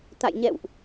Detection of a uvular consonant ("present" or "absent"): absent